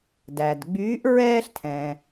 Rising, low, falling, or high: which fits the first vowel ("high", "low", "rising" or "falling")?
low